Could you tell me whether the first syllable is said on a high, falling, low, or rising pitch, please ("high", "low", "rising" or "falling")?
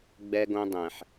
high